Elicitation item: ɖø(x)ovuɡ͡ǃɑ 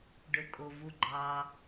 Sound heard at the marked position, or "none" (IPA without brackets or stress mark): kʼ